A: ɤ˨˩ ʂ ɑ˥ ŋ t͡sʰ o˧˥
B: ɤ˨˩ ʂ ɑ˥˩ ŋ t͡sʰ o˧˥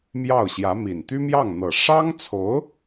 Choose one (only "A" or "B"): A